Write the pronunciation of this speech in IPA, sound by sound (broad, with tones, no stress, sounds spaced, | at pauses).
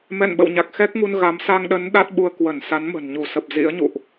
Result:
m ɛ̰˧˨ n ɓ ə̰˧˨ w ɲ a˨˩ k̚ x ɛ˦˥ k̚ ŋ u˧ n ɣ a˨˦ m s a˧ ŋ ɗ ə˨˦ n ɗ a˦˥ t̚ ɓ u˧ ə̯ k w ə˧˩ n s a˨˦ n m ə̤˨˩ n ɲ u˧˩ s ə˨˩ p̚ z ḭ˧˥ ə̯ ɲ ṵ˧˨ ʔ